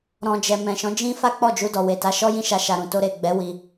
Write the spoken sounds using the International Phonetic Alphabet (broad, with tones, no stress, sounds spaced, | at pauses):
ɾ ɔ̃˧ d͡ʒ ɛ˨ m ɛ̃˨ ʃ ɔ̃˨˦ d͡ʒ ĩ˦ f a˦ k͡p ɔ˦˨ d͡ʒ u˧ d ɔ˨ w e˨ t a˨˦ ʃ ɔ˦ j ĩ˦˨ ʃ a˧ ʃ a˨ ɾ ũ˨ t o˧ ɾ e˨ ɡ͡b ɛ˨˦ w i˧